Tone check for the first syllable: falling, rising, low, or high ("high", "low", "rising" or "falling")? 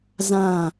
falling